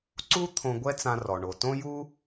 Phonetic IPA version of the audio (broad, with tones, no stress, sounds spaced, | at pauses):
ǀ u˥ t̪ʰ õ˧ ɡʷ ɛ˥ t͡s ã˧ r ɔ˩ ɳ o˩ t õ˥ j u˥